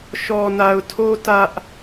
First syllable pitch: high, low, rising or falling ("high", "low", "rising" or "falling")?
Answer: low